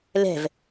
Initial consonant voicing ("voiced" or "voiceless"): voiced